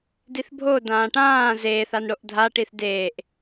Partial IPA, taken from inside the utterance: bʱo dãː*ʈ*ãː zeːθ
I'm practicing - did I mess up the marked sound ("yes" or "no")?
no